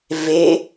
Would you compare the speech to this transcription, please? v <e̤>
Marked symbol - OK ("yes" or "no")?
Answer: no